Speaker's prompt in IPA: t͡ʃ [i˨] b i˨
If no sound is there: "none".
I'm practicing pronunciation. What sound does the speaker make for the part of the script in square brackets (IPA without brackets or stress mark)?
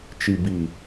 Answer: i˨